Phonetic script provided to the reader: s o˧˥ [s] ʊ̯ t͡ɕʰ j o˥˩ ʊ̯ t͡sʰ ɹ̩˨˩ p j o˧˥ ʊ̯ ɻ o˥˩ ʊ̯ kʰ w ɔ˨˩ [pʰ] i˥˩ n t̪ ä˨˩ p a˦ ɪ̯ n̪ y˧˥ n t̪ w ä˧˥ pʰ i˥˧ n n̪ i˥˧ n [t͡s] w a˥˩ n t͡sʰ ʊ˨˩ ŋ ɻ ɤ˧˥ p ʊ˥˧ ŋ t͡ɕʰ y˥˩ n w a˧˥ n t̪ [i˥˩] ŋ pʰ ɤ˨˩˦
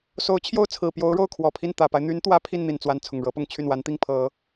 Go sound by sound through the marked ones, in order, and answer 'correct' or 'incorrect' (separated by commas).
incorrect, correct, correct, correct